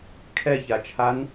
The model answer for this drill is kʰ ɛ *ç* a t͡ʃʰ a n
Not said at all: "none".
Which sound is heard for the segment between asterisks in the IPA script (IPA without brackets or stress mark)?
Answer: ç